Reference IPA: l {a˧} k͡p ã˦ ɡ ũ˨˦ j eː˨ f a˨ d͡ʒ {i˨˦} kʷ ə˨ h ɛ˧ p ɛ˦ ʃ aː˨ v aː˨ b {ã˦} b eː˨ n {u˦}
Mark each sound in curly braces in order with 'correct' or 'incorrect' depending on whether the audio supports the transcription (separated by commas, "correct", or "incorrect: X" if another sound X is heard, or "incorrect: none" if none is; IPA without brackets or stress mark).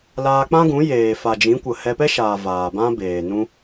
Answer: incorrect: aː˧, incorrect: ĩ˨˦, correct, incorrect: ũ˦